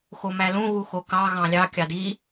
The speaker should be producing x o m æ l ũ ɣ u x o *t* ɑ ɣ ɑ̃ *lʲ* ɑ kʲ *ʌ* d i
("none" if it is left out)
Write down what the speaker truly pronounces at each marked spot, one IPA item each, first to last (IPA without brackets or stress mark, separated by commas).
k, lʲ, ɑ